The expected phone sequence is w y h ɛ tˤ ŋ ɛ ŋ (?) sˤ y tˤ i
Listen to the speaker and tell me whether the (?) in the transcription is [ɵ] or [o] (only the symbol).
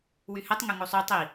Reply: o